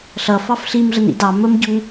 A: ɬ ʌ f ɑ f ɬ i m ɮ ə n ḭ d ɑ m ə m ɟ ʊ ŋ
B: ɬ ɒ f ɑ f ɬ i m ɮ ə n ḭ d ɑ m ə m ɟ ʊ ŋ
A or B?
A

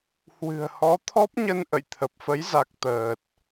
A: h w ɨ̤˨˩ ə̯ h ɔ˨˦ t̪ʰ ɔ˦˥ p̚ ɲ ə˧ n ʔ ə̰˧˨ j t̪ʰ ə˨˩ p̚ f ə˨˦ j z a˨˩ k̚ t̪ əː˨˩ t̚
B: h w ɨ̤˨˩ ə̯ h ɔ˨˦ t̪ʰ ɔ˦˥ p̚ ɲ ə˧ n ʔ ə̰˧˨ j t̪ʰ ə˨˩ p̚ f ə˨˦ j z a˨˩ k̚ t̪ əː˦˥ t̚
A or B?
A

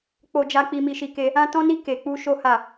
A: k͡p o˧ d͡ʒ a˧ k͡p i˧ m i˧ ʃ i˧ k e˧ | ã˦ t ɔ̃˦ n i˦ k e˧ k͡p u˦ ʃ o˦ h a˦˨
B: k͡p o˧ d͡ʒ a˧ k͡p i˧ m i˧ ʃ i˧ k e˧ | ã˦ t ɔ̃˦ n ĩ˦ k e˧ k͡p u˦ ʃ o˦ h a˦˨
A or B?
A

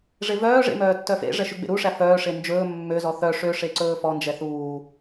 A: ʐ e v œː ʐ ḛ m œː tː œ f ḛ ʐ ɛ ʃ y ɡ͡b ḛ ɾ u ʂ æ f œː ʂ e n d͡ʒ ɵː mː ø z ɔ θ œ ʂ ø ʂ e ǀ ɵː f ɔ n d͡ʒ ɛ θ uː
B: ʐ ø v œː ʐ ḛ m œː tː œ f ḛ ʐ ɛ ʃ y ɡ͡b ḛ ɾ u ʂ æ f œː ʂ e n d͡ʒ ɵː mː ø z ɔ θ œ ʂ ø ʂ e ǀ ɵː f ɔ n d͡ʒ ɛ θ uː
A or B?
A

